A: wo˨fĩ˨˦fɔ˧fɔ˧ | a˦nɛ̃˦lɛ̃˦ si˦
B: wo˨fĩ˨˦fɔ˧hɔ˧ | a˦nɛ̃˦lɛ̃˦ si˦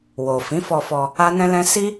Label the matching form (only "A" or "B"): A